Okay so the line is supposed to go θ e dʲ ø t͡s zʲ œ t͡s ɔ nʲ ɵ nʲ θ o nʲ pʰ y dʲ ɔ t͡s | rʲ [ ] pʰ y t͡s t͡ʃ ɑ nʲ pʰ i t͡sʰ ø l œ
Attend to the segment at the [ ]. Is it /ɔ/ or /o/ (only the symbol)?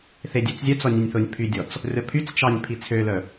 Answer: ɔ